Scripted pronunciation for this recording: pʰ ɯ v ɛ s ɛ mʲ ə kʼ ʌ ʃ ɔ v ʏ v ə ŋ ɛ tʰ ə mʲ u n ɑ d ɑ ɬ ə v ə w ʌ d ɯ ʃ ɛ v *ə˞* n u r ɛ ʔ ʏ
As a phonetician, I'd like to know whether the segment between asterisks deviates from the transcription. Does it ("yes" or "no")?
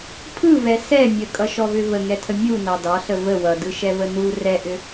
yes